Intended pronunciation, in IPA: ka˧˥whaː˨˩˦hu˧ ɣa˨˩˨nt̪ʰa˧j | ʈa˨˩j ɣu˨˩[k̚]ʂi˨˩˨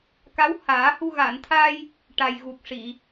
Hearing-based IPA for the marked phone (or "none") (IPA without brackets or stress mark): k̚